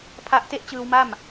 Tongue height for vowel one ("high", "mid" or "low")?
low